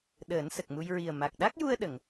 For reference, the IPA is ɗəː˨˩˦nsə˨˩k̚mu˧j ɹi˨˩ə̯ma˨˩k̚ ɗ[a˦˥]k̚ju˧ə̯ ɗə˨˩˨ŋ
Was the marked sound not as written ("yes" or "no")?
no